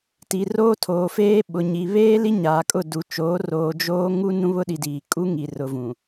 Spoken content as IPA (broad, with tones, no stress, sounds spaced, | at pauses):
t i˨ r oː˦ tʰ oː˨ f eː˦ ɓ ʊ˨ ɲ i˨ β eː˦ l i˦ ɲ aː˨ kʼ ʊ˦˨ d u˨ t͡ʃ oː˨˦ r oː˨ d͡ʒ oː˦ ŋ u˦ n ũ˦ β ʊ˦ ɗ i˨ d iː˨ kʼ u˦ ŋ i˨ r ʊ˨ v ũ˨